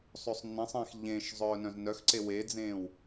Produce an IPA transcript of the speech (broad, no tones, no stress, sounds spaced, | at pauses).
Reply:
sˤ ø sˤ nː ẽ sˤ ẽː x ʎ ẽ ʃ zˤ œː n œ̃ z n œ x ǀ e w e d͡z ẽː w